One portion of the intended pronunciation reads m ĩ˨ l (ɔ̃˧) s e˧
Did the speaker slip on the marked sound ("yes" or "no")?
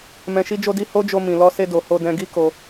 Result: yes